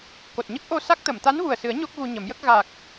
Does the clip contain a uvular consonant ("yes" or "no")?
no